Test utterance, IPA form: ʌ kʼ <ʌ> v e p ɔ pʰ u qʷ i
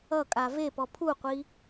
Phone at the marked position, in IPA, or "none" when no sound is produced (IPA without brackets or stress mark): a